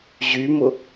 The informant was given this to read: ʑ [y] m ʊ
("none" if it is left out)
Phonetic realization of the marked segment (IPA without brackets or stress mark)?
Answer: y